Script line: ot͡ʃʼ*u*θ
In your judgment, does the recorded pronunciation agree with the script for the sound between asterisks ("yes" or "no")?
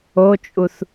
yes